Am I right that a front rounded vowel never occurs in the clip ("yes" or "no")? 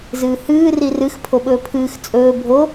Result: yes